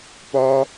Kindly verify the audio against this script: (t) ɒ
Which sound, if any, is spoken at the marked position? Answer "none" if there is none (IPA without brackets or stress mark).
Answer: p